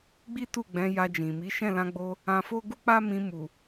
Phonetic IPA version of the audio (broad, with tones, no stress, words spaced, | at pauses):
ɡ͡bi˦tu˦˨ ɡ͡bɛ̃˨˦ja˧d͡ʒĩ˨mi˨˦ ʃɛ̃˦˨lã˧ɡ͡bo˧ | ã˧fo˦ ɡu˦k͡pa˦mĩ˧mu˨